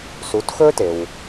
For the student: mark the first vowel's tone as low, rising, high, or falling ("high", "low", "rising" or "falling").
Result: rising